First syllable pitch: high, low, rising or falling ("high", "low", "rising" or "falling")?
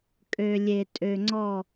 low